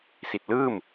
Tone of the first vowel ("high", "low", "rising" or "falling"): low